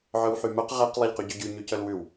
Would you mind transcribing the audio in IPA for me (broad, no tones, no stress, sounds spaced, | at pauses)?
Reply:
ʕ œ w ħ y m œ q ʁ ɛ q lˠ i ʎ q y ɟ ɵ ɟ y ɲ y c œ l w ʉ w